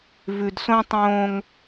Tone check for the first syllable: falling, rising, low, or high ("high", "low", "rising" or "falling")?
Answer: low